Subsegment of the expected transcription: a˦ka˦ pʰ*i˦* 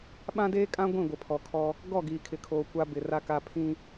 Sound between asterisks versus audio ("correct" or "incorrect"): incorrect